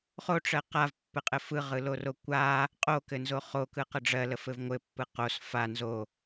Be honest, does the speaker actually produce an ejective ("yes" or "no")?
yes